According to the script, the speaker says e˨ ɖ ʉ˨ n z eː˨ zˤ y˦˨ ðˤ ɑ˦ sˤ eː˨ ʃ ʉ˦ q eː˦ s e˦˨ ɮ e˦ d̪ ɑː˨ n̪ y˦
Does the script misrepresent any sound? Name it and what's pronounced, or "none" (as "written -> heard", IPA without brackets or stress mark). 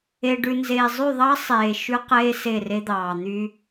ɮ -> r